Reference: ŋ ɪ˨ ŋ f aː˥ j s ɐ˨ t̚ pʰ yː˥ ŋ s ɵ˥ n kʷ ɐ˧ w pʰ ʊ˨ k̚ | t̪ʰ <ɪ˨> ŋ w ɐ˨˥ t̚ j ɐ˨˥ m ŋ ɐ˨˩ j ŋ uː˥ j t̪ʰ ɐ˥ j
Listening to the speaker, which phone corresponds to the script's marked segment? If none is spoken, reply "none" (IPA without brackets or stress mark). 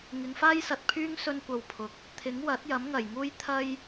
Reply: ɪ˨˥